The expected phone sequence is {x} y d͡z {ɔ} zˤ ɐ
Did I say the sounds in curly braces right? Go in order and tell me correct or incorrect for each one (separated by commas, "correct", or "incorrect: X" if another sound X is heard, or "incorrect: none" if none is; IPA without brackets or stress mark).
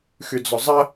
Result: correct, correct